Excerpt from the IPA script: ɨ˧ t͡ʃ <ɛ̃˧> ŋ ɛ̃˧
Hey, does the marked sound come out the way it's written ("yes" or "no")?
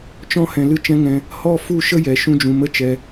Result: no